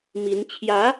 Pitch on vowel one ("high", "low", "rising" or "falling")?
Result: rising